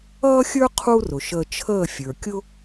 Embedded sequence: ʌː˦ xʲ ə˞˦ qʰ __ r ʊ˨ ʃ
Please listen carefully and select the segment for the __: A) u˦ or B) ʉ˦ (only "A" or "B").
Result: A